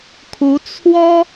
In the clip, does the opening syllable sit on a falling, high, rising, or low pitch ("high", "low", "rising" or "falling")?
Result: rising